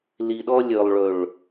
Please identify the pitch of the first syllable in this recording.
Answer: low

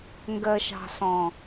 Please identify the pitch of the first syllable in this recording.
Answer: low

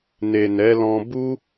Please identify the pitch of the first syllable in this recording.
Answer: low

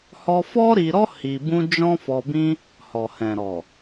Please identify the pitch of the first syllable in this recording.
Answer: high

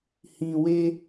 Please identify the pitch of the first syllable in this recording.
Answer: low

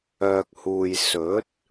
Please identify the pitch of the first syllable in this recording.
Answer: low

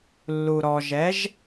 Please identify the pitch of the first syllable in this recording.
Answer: low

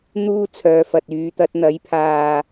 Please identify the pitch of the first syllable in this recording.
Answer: high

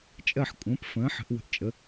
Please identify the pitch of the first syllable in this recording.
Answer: falling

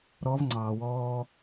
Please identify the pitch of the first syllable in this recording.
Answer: rising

